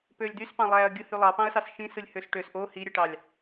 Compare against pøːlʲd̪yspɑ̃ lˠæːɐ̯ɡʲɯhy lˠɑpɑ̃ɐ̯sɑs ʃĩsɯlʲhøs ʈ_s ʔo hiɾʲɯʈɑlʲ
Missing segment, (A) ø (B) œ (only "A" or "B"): A